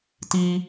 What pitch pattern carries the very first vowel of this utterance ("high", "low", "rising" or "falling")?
high